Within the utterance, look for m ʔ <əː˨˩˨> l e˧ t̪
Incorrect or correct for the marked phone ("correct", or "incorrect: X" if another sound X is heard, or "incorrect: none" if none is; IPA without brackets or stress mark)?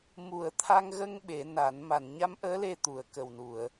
incorrect: əː˧˥